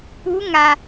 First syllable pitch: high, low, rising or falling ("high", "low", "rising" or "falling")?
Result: rising